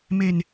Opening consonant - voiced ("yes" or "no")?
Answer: yes